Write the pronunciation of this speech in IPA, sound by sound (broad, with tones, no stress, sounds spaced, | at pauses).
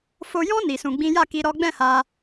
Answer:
f o˧ j ɔ̃˦ n i˧ s ũ˧ ɡ͡b ĩ˦ j a˦˨ k i˧ ɾ ɔ˦ ɡ͡b ɛ̃˦˨ h a˧